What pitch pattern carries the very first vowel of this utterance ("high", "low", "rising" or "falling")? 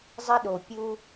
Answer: high